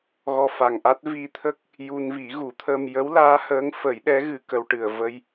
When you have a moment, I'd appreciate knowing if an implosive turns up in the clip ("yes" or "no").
yes